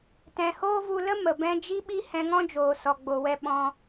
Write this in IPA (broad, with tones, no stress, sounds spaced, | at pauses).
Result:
t ɛ̃˧ h oː˦ v u˧ l ə˦ m ə˨ b ɛ̃˦ d͡ʒ i˦ ɓ i˦ h ɛ̃˧ ŋ ɔ̃˦ d͡ʒ oː˨ s ɔ˨ ɡ͡b o˨ w ɛ˧ ɓ ɔ̃˧